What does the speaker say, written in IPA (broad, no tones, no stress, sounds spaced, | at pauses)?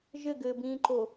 ʒ ɘ ɡ ɘː b ĩː ǃ o